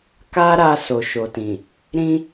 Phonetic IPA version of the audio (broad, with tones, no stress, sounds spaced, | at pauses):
k a˦ ɾ a˧ s o˨ ʃ o˨ t ĩ˨ | ɾ ĩ˦